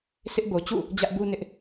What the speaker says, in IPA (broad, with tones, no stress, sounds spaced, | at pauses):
sʰ ɪ˦ ʔ b o˨ t͡ɕ ṵ˦˨ | d͡ʑ ä˦ ʔ b u˦ n ɪ˦ ʔ